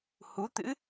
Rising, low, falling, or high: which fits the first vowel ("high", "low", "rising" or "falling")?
rising